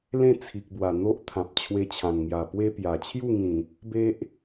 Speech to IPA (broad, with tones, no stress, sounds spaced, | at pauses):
l ẽ˥˧ t͡sʰ i˨ k̚ b w a˨˩ n̪ o˦ ʔ t̪ʰ ã˨ p̚ t͡ɕʰ w e˧ t͡ɕʰ ã˨˩ n ŋ j a˨˩ p w e˦ p j a˨˩ t͡ɕʰ j u˥˧ ŋ ĩ˨˩ | b e˦ ʔ